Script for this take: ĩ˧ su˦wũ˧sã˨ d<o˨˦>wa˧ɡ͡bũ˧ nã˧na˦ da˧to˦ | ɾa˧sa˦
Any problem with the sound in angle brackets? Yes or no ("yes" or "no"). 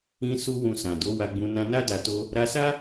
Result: no